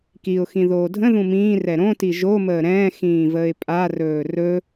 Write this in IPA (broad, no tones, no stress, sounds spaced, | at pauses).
k i ʊ̯ x ĩ ð oː dʱ ə̃ ð ũ m ĩː r ɛ ɾ õ t i ʒ o m əː ɾ ɛ̃ː x ĩː v əː ɪ̯ pʼ a r ɵː r ɵ